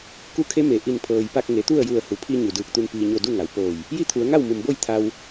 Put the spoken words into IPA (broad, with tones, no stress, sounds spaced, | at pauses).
k u˧˥ kʰ e˧˥ m e˩ ʔ i˧˩ n pʰ ɤː˩ j p a˥˨ k̚ ŋ e˩˧ t̪ u˥˨ ə̯ j u˧˩ ə̯ h u˩˧ pʰ i˧ ɲ u˩ d ɯː˧˩ k̚ t̪ u˧ n p iː˩ ɲ o˧˩ d u˥˨ ŋ a˩˧ w p oː˧˩ j | j i˥˨ t̪ʰ u˩˧ ə̯ ŋ a˥˨ w m u˩ m b o˥˨ j t̪ʰ a˧ w